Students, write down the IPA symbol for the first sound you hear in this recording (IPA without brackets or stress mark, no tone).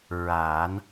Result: ɹ